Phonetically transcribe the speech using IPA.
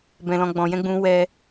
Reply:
bɛ̃˨lɔ̃˨ɡ͡bɔ̃˨jɛ̃˧ ɡ͡bũ˧wɛ˧

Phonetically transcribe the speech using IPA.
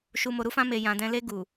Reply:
ʃu˨mo˨ɾu˧fã˧ me˨ jã˨dɛ̃˧ le˧ ɡu˨

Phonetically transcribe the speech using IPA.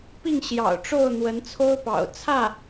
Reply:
pi˥˩ŋɕjɑ̰˨˩ʊ̯ʈ͡ʂo˥˩ʊ̯ n̪wə˧˥nt͡sʰo˥ʊ̯pɑ̰˨˩ʊ̯ t͡sʰä˥˩

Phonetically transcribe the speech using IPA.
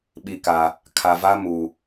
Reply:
ɓi˨ka˨ | kʰa˨va˦mu˨

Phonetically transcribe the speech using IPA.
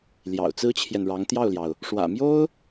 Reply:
ljɑ̰˨˩ʊ̯t͡sɹ̩˥t͡ɕʰjɛ˨nɻɑ˧˥ŋ t̪jɑ˥˩ʊ̯ljɑ˩ʊ̯ | ʂwä̰˨˩mjo˥ʊ̯

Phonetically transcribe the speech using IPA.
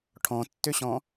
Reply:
ʈʰɔ̃tːøɕɔ̃

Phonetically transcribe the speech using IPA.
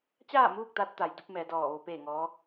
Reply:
t͡ɕaː˥˨muː˥˨k̚t̪a˧t̚ t̪a˩˧jdu˧˥p̚mɛː˩˧ dɔː˧˩ʋo˧ peː˥˨ŋɔː˧˥

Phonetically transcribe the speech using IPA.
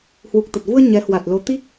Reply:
hwu˨˩k̚t̪ə˨˩t̚vu˧ə̯ ɲɛ˨˦hwa˨˩t̚lo˨˦ t̪i˦˥k̚

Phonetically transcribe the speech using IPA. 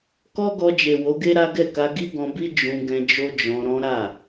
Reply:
kɔ˦ɡɔ˧d͡ʒe˨ wo˨˦ɡe˦ɾa˦ɡɛ˦˨ ka˧ɡi˦ɡɔ̃˧bi˦ d͡ʒũ˧ɡɛ̃˧ d͡ʒo˦d͡ʒɔ̃˧ɾɔ̃˦ ɾa˦˨

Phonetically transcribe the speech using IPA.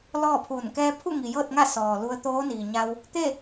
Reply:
lɔː˥˨pʰuː˧˩n kɛː˧pʰu˥˨ŋi˩ jɤː˥˨t̚ŋa˥˨ sɔː˩lu˧ə̯ t̪oː˧˥niː˩ɲa˧w | t̪e˥˨

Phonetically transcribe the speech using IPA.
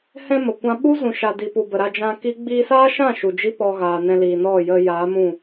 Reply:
hɛ̃˧ mə˨kʷã˦ ɓu˦zũ˨ʃa˨di˨ pu˨bə˨ɾa˧ d͡ʒã˧ki˦ ɡ͡biː˧saː˦ʃã˦˨ ʃu˨d͡ʒi˦ pɔ˧ɣaː˨ nɛ̃˧liː˨ nɔ˦˨jə˧ jaː˨˦mũ˦˨

